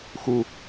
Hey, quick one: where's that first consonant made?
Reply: velum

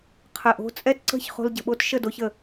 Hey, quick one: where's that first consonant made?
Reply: uvula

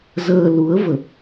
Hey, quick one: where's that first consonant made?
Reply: tongue tip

